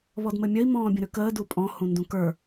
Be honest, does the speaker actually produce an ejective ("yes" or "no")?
yes